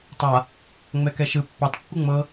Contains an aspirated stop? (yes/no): no